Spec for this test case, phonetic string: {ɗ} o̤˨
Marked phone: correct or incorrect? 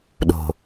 correct